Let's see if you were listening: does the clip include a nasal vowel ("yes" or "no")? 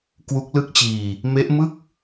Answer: no